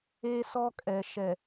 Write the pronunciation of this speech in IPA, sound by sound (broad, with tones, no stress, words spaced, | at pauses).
e˦sɔ˦kʼɛ˨ ʃɛ˨